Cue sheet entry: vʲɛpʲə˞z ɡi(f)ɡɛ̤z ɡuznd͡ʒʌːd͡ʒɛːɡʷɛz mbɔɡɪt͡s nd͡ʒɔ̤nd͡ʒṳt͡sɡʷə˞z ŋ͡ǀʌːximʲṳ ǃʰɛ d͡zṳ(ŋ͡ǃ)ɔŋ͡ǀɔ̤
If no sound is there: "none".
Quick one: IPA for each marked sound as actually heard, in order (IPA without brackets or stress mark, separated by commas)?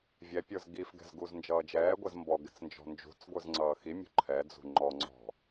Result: f, ŋ͡ǃ